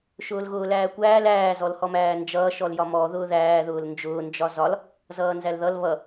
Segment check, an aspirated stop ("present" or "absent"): absent